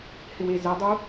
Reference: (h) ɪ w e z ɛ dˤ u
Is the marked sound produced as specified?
yes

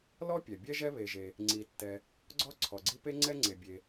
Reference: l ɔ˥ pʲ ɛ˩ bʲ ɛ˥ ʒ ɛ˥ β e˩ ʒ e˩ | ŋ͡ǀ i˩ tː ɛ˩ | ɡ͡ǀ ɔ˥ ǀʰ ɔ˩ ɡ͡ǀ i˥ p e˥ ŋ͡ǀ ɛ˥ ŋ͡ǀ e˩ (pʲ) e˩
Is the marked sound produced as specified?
no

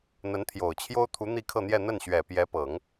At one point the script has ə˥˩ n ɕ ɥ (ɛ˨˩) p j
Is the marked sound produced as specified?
yes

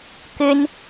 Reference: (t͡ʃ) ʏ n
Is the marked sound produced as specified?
no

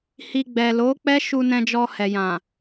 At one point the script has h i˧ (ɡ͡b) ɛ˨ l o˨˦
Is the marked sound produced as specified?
yes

